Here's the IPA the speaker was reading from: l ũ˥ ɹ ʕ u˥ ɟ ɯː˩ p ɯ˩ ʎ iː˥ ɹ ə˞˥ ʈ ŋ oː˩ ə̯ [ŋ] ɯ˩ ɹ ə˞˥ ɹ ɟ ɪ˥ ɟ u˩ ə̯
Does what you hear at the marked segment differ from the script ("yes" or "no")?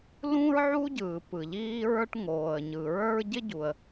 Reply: yes